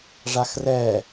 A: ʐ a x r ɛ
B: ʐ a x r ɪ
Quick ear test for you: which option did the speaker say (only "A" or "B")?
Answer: A